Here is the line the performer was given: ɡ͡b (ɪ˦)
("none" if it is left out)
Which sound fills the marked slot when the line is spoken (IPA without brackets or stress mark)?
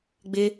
ɪ˦